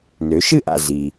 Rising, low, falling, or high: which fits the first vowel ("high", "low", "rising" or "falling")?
rising